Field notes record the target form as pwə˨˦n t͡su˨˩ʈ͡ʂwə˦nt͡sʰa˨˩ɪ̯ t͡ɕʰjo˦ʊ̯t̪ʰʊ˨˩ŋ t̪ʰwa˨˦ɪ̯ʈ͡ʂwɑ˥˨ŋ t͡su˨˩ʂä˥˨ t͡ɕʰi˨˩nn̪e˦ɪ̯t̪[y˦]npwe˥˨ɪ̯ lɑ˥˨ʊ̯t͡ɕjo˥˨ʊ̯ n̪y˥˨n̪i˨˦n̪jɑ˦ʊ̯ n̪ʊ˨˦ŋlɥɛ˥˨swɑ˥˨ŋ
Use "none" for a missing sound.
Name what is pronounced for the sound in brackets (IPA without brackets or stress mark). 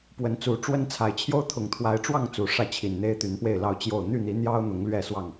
y˨˦